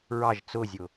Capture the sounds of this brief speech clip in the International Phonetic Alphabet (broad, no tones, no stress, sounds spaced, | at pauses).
ɹ ɑ ʒ t͡s ʊ zʲ ʊ